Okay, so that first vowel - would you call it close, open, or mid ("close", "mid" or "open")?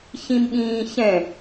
close